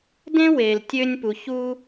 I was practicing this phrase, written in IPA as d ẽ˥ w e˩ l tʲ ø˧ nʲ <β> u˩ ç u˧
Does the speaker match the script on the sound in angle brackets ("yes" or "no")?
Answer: no